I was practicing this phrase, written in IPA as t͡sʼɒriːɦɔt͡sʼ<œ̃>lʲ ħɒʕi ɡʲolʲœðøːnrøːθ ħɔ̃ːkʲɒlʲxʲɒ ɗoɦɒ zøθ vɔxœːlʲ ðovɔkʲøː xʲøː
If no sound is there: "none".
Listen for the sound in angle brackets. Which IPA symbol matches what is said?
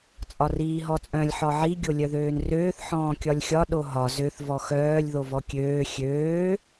œ̃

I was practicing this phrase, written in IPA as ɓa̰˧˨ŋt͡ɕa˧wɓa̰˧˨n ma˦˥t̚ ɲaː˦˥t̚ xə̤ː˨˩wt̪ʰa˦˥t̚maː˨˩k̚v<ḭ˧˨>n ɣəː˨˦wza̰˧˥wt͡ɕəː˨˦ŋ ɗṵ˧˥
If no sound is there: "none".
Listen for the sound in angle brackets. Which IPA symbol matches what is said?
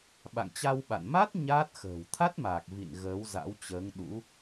ḭ˧˨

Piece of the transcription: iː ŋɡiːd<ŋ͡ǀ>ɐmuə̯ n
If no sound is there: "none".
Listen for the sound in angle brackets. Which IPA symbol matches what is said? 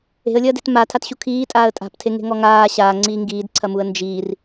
ǀʰ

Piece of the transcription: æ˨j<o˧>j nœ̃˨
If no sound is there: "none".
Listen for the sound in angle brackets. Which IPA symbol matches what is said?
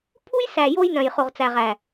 o˧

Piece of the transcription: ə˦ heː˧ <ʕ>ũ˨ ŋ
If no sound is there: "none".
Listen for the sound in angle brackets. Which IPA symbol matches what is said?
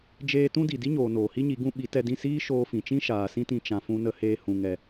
h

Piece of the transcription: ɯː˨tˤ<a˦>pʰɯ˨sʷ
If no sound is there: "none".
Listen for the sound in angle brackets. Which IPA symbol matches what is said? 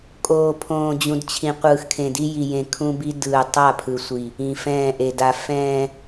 a˦˨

